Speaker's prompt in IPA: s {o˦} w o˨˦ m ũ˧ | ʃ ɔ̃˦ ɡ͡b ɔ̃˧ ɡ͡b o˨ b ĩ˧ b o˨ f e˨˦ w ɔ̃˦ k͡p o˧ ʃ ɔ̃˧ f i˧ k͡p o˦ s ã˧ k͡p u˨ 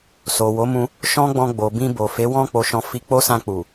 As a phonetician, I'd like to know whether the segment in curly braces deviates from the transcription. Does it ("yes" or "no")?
yes